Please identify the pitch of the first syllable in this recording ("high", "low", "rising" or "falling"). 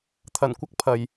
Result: low